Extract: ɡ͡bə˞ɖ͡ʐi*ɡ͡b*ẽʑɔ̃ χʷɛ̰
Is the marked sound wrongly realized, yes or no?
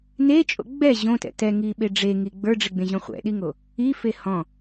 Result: no